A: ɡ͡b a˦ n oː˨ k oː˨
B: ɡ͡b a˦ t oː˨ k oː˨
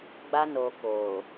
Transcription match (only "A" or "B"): A